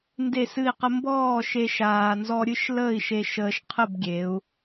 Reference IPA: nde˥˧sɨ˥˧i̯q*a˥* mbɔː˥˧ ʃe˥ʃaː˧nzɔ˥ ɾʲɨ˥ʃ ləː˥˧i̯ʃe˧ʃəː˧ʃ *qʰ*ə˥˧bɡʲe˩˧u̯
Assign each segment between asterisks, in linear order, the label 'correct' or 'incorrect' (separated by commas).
incorrect, correct